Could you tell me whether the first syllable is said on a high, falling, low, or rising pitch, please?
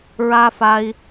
high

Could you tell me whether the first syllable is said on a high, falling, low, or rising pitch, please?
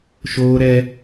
high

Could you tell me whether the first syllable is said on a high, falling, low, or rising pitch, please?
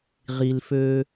low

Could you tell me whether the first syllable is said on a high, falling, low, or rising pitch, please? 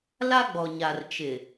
high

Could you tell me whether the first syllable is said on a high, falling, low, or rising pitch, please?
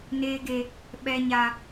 high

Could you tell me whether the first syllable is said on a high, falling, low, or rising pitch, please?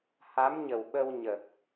rising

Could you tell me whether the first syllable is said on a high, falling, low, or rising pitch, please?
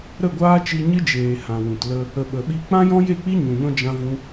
falling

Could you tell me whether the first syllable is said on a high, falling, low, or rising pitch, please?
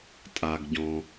low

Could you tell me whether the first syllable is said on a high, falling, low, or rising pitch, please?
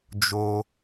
low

